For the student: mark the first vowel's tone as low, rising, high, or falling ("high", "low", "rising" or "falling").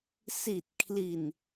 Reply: low